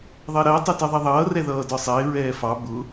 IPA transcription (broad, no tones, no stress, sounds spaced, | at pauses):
ðˤ ɜ ɾ ɜ tˤ ɛ t ɜ ðˤ ɛ ðˤ ʌː r ɛ ð ʌː d ɒ sˤ ɪː ɹ ɛː f ɑ b ʊ